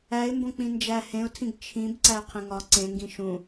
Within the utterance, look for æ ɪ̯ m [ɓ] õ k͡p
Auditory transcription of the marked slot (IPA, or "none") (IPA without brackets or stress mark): b